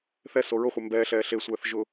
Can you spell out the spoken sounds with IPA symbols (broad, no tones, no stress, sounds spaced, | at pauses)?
θ ɛ s o ɹ ʊ χʷ e m b ɛː ɬ ɛː ɬ e sʷ ɛː θ ʒ ʊ